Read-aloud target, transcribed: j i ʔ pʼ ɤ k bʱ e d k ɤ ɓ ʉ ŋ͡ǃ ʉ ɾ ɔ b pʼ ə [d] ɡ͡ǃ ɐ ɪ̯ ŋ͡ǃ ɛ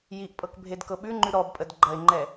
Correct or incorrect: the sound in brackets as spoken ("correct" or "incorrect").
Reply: correct